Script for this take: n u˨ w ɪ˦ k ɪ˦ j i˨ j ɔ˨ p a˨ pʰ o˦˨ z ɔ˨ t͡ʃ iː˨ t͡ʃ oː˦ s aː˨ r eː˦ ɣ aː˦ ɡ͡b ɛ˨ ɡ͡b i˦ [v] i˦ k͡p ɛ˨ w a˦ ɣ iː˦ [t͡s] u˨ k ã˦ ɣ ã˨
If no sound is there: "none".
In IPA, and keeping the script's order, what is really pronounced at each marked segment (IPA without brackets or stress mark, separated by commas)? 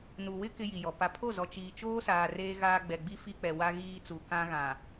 f, t͡s